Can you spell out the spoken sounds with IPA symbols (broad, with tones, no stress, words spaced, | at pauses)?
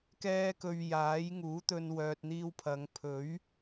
kɛː˧kɵ˨ɥ jaː˨˥j ŋuː˨˥t̪ɵ˧n wœː˨t̚n̪iː˧wpʰɐ˨˧ŋ pʰɵ˨˥ɥ